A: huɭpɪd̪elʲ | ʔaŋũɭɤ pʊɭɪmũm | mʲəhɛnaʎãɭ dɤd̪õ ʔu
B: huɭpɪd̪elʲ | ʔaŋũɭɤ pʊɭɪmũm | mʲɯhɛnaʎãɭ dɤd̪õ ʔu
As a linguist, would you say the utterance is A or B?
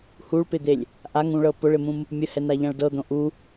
A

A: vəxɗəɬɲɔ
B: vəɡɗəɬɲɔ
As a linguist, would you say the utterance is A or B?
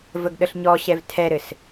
B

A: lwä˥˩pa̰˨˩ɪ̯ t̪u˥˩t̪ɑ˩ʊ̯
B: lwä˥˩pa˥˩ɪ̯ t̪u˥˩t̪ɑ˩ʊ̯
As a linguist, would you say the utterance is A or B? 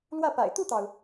A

